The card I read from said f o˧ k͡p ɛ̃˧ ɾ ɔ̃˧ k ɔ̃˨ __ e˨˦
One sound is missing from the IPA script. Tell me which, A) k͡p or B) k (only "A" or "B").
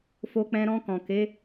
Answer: B